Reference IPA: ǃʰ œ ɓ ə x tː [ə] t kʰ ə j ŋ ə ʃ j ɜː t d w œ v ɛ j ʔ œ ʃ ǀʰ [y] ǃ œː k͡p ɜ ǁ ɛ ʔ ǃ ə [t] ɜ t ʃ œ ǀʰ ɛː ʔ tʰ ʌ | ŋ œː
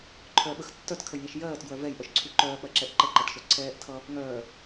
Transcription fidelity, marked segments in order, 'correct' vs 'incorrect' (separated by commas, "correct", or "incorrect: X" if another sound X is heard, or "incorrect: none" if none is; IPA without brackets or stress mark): incorrect: œ, correct, incorrect: ǃ